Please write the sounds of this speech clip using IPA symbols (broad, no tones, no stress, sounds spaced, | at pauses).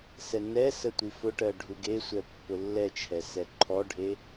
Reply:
s ɛ n ɛ s ə tʷ i f ʊ ʈ ɜ ɖʱ u ɡ e sʷ ɛ pː ʊ lː ɛ t͡ʃʰ ɛ s ɛ ǃʰ ɔ ɖʱ e